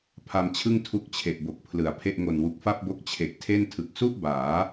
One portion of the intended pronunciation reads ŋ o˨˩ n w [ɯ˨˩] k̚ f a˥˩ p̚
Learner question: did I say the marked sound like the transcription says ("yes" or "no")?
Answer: no